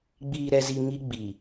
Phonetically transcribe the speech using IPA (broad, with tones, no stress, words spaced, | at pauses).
ɡ͡biː˨ɾɛ˨zi˨ ŋi˦ɡ͡bi˨